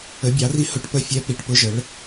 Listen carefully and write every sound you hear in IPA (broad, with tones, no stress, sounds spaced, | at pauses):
ə˩˧ bʲ ɑ˩˧ r i˨˥ h ʊ˨˥ ʈ p ə˨˥ fʲ ɛ˨˥ p i˩˧ ʈ p ʊ˨˥ ʒ ə˩˧ ɭ